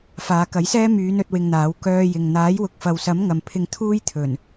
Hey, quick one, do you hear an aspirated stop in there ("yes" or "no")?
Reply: yes